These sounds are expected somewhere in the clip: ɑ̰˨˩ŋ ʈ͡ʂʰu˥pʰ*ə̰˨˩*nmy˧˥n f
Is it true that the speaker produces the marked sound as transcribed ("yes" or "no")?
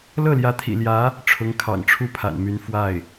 no